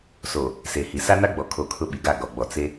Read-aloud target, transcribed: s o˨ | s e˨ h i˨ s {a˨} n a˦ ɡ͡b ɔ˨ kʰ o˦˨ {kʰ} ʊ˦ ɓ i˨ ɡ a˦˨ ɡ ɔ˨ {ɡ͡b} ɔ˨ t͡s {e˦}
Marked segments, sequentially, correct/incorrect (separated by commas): incorrect, correct, correct, correct